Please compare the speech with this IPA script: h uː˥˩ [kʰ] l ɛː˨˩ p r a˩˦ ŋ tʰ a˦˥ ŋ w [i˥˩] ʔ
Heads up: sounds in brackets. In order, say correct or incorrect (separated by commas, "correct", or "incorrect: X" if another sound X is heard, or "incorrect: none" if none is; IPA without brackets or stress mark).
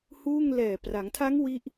incorrect: ŋ, correct